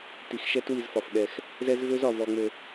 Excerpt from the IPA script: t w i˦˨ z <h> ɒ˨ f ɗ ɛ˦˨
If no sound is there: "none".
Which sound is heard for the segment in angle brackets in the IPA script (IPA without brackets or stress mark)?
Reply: f